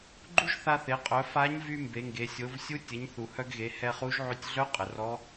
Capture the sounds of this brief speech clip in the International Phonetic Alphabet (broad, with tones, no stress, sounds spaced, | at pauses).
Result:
ɡ͡ǃ u˥ ʒ θ a˧ θ e˩˧ qʼ œ˩˧ f a˧˥ ɲ v y˧ m b e˩˧ ŋ ɡ e˩˧ sʲ o˩˧ v sʲ u˧˥ tʲ ə˩˧ ɲ θ u˩ h œ˧ ɡ ɣ e˩˧ h ɛ˧ χ u˧˥ ʒ ʕ y˧ tʲ ɮ œ˧˥ qʼ ə˩ r ɔ˧˥